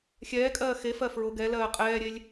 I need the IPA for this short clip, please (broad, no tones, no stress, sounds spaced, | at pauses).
xʲ ɛː kʼ ɜː x e f ɜ f ɹ ʊ ɡ ɛ l ɜː qʼ ɛː ɾʲ e lʲ